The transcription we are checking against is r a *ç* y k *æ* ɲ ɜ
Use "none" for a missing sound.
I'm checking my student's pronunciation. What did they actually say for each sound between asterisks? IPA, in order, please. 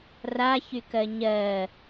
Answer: ç, ɜ

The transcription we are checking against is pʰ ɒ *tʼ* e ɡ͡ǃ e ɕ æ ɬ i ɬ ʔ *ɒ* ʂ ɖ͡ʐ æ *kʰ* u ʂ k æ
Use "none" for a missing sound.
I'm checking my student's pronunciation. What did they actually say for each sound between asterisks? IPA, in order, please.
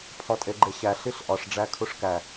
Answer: tʼ, ɒ, kʰ

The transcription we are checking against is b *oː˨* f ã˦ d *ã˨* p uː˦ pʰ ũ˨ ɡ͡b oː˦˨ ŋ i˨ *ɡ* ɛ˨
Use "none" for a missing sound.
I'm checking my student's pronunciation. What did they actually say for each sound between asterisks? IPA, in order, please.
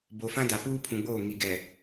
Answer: o˨, a˨, ɡ

